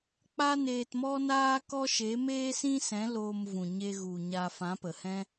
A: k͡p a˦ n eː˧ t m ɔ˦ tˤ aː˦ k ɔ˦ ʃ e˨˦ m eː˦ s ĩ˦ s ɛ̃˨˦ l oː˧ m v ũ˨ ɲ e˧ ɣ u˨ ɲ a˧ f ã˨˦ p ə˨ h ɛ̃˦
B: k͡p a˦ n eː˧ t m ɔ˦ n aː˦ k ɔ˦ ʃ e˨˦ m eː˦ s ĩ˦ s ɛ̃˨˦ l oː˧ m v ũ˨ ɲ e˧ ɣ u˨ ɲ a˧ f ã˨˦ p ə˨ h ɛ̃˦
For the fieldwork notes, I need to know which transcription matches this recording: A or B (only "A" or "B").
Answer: B